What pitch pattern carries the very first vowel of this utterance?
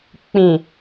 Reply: low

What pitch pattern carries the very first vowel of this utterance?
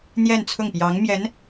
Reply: falling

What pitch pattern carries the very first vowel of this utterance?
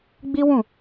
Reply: high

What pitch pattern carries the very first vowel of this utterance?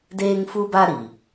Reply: high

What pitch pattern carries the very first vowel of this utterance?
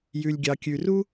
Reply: low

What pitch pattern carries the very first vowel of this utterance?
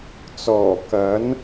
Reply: low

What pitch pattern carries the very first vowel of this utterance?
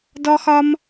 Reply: high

